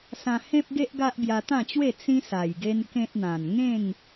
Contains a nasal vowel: yes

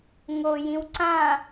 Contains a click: yes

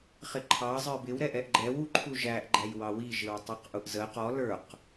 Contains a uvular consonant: yes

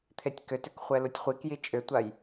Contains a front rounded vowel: yes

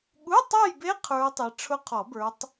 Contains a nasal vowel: no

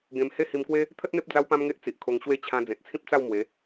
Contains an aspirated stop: yes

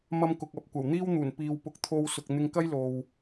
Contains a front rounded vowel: no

